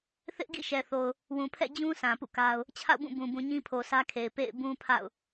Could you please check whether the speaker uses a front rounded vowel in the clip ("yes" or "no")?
no